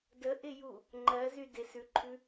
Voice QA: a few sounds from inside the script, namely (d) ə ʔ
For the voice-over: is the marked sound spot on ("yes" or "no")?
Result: yes